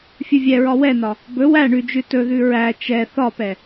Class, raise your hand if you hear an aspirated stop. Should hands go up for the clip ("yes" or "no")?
no